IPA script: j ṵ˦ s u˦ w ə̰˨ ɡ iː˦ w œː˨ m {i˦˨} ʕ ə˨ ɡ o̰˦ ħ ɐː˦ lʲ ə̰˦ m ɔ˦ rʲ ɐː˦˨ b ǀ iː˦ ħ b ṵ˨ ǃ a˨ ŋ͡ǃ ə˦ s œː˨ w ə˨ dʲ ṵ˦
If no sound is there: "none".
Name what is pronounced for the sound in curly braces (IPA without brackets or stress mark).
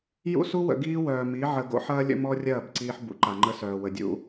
i˨˦